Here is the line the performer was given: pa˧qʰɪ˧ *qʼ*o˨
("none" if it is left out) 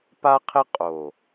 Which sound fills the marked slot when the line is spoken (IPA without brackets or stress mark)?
qʼ